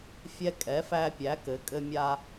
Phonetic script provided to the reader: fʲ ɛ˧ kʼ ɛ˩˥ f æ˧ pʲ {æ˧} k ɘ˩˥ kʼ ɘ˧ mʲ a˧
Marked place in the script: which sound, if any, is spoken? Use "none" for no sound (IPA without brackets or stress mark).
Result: æ˩˥